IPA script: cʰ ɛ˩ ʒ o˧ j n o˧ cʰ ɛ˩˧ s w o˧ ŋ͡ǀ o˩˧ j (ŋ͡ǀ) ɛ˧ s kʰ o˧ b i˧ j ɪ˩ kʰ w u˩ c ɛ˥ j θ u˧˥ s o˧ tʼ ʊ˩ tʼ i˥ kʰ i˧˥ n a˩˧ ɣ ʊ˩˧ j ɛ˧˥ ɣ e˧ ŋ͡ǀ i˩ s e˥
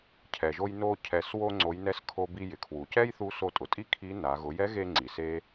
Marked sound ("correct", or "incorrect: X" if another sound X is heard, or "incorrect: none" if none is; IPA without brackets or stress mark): incorrect: n